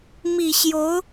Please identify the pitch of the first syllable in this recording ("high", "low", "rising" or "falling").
low